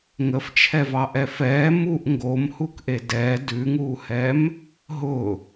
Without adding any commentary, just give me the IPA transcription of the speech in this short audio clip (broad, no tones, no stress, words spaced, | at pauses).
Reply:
ŋəft͡ʃʰɛvɑʔɛ fɛː muʔ ŋɡomhukʔe dɛː dʉŋuːhɛm | ɦʊ